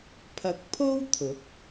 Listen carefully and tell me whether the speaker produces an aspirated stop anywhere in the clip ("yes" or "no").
yes